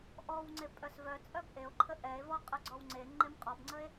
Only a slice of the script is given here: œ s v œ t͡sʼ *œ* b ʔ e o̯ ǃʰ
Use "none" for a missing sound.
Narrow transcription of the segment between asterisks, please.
œ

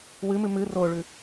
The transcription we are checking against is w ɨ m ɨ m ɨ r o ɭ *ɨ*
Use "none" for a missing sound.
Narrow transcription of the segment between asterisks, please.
ʉ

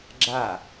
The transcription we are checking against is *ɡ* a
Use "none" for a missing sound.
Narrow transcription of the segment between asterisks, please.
ɡ͡ǁ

